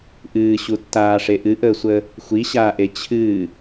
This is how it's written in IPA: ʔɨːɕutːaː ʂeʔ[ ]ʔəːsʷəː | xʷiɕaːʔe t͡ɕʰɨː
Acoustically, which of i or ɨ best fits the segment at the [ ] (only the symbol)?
ɨ